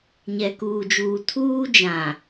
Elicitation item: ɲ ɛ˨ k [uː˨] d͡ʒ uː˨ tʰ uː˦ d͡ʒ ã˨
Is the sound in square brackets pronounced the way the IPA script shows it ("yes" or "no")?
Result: yes